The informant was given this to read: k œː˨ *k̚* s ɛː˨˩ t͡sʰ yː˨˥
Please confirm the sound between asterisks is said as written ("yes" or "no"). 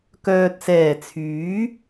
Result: no